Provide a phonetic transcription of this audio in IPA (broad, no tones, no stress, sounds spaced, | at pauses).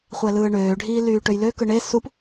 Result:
χʷ æ l ɯː ɳ øː ɖʱ iː l yː ʈ ø j l ø k ɯ ɳ e s u p